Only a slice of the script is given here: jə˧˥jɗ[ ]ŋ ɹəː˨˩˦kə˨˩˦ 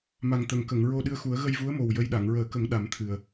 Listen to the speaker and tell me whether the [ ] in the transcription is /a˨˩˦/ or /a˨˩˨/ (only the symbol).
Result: a˨˩˨